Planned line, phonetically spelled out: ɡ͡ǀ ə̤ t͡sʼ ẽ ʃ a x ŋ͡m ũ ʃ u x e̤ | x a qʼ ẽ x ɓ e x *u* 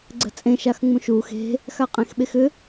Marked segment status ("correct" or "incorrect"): incorrect